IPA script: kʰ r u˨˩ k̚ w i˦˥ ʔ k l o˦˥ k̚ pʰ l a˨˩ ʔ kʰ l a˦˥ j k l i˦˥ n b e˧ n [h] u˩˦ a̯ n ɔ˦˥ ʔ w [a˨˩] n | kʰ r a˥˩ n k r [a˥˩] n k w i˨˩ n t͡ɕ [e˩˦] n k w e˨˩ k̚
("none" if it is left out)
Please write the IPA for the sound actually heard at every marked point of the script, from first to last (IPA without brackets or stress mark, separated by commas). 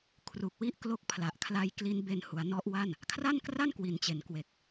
h, a˥˩, a˥˩, e˨˩